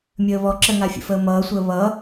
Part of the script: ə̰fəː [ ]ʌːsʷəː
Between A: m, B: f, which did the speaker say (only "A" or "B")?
A